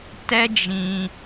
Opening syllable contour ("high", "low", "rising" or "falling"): high